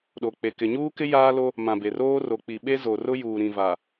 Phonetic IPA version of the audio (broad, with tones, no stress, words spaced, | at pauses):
ɗo˨k͡pe˨ kɪ˨ɲuː˦kɪ˦ jaː˦lo˦ | mã˨be˨roː˦ ro˨k͡pi˨ɓe˦ zo˨rʊ˦juː˨ɾĩ˨ va˨